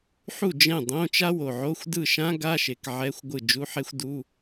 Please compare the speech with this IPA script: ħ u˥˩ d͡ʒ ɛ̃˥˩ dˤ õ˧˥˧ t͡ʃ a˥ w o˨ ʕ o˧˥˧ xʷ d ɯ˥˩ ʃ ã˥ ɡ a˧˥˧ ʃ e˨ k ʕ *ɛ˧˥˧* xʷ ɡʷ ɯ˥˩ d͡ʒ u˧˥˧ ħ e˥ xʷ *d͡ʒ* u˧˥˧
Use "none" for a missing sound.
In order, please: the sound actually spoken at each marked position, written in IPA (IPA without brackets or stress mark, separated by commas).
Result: ɛ˧˥˧, d